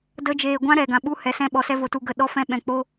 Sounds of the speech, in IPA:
d ə˦ d͡ʒ eː˧ ɡʷ ã˦ ɾ ɛ˨ ɡ ã˨ ɓ u˦ h ɛ˨ s ɛ̃˧ ɓ ɔ˨ s ɛ˧ v o˨ t u˨ ɡ ə˨ ɗ ɔ˧ f ɛ̃˧ ɓ ɛ̃˨ k͡p o˦

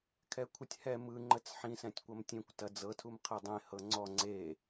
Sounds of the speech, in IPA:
kʰ ɛ kʷʰ ɨ tʲ h ɛ m ɯ ŋ͡ǃ ə t͡s ħ ĩ s ɛ̃ tʲ kʷ ɐ m tʲ ẽ kʷ t ɐ d͡z ɤ tʰ u m qʰ ɛ dˤ ẽ h ɤ ŋ͡ǀ ɔ ŋ͡ǀ e

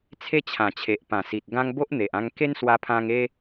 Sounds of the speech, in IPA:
t͡sʰ e˦ t͡ɕʰ ã˨˩ t͡ɕʰ e˨ ʔ p ã˨˩ s i˨ t̚ ɡ ã˦ ŋ b o˦ ʔ n̪ e˨ ʔ ã˧ ŋ k e˦ n s w a˧ pʰ ã˧ ŋ e˦

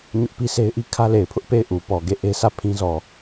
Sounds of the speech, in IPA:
ɲ ʊ˦ ʔ p i˦ s e˦ ɪ̯ ʔ i˦ kʰ ä˦ l e˨ ɪ̯ pʰ ʊ˦ ʔ p e˦˨ ɪ̯ ʔ u˨ p ɔ˨ ɡ e˦˨ ʔ e˦ s ä˦˨ pʰ ĩ˦ z ɔ˨

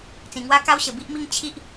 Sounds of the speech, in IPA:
t͡s ĩ˨˩ ŋ w a˦ k a˦ w ɕ ə˨˩ b i˦ ʔ m i˦ ŋ t͡ɕʰ i˦ ʔ

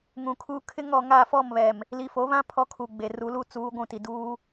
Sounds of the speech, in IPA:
ŋ ũ˨ kʰ u˦ kʰ ɪ˦ ŋ ɔ˨ ŋ a˦˨ f ɔ˦˨ m β ɛ˨ m | l i˨ f o˨˦ β ã˦ pʰ ɔ˦ kʰ u˨ ɡ͡b e˨ r u˨˦ l u˦ t͡s uː˨˦ ɡʷ ũ˦˨ t i˨ d uː˦

